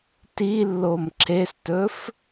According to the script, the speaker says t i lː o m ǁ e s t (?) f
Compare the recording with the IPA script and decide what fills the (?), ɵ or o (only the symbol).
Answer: ɵ